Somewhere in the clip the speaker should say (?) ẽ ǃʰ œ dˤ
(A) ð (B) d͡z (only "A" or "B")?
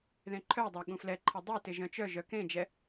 A